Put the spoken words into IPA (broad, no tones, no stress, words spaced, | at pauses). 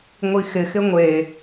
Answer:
ŋʷixɪxɪ ŋʷe